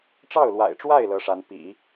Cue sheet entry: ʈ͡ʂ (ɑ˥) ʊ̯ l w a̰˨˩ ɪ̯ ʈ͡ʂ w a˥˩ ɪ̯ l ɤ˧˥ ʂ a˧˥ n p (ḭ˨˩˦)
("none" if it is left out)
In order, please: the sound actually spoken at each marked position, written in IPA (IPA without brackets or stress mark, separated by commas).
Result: ɑ˥˩, ḭ˨˩˦